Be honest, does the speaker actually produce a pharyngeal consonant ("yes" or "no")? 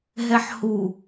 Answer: yes